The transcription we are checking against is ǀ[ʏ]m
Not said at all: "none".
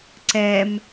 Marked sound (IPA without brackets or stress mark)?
ɛ